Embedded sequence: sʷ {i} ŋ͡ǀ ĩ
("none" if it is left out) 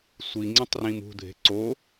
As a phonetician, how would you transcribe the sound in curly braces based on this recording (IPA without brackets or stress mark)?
i